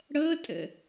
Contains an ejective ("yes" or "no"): yes